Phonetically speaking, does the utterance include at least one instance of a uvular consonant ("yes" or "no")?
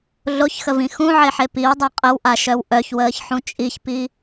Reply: yes